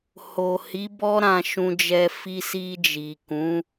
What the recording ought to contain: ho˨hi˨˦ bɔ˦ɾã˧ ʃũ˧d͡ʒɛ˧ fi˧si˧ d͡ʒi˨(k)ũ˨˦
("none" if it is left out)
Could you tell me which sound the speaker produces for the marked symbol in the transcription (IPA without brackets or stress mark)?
k